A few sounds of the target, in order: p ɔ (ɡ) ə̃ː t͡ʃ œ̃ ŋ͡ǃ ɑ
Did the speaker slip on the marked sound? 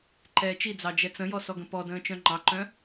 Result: yes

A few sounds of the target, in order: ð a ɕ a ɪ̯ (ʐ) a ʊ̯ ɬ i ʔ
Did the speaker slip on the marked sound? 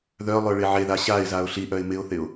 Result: yes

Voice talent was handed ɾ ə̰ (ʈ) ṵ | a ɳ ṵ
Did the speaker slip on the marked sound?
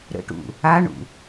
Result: no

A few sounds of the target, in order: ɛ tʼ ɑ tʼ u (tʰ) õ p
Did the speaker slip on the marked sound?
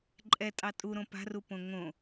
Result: yes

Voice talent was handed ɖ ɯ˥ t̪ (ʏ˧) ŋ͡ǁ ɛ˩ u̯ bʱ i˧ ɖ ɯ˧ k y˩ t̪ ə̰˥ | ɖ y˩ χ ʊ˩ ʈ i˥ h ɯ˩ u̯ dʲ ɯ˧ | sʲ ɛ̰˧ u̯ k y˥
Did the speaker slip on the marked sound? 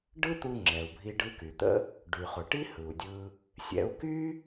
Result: yes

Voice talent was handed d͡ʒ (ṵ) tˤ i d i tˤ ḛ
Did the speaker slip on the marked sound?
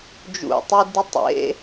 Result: no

